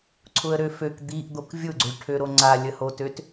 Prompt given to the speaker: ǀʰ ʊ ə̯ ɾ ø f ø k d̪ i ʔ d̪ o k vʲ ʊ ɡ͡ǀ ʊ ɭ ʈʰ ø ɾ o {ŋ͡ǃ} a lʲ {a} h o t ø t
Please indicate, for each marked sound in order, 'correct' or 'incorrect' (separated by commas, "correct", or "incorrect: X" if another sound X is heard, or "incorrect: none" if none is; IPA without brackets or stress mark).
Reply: incorrect: ŋ͡ǀ, incorrect: ə